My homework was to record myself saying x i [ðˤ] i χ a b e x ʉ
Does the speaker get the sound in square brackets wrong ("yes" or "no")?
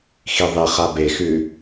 no